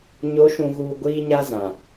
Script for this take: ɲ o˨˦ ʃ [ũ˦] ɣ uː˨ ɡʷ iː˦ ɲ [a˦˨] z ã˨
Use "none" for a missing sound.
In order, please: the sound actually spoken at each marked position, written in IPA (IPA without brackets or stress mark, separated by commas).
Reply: ũ˨, a˦